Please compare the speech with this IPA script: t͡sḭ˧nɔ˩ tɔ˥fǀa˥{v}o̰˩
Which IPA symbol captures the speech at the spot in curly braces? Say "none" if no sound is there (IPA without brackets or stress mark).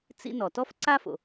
f